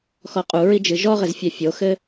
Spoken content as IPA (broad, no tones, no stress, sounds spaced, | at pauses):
x ɔ qʼ u ɹ i d͡ʒ ɨ ʒ ɔ ʁ ɘ z fʲ ɛ fʲ o x ɘ